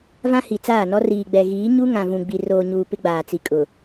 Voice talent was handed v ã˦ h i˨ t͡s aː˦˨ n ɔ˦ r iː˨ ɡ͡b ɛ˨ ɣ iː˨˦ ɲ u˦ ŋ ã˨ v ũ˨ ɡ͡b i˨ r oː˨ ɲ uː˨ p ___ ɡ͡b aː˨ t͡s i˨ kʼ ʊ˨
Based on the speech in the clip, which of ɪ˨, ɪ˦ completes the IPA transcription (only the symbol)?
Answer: ɪ˦